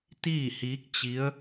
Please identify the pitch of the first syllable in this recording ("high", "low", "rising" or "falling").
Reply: falling